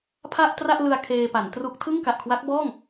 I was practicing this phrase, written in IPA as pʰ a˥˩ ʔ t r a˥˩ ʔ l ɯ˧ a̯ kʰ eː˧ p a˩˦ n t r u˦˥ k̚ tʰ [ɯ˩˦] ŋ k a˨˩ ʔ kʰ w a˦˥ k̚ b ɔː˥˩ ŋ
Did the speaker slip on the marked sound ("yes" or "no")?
yes